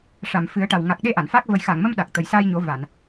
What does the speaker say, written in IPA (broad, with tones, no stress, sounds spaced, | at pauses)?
ʂ a˨˩˨ m f ɨ˨˩˦ ə̯ ʈ a˨˩ w ŋ a˨˩ k̚ ɗ e˧ ʔ a˨˩˨ n f a˦˥ k̚ v ə˨˩ j x a˨˩˨ ŋ m ə˧ m ɗ a˨˩ k̚ t̪ ə˨˩ j s aː˧ j ɲ o˨˩˦ v a˨˩˨ n